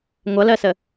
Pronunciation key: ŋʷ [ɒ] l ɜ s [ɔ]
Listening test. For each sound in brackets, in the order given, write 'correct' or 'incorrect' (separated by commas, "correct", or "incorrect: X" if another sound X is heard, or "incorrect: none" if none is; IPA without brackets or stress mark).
incorrect: ʌ, incorrect: ə